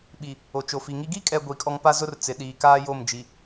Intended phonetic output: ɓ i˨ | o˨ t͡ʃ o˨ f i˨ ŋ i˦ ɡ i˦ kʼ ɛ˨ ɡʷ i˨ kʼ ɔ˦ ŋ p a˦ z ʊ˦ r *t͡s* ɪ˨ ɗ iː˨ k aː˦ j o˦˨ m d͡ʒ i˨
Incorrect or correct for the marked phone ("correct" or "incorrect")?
correct